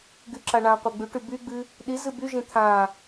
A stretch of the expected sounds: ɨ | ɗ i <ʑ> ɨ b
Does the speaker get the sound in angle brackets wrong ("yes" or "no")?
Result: yes